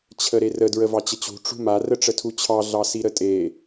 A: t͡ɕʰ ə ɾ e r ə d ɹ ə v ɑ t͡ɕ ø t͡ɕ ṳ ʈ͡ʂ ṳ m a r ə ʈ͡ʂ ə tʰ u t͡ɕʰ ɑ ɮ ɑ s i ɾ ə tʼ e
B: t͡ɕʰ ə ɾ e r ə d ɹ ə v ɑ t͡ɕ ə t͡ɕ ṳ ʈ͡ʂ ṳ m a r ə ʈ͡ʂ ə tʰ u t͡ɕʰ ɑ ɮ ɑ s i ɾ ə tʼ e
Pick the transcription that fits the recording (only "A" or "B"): B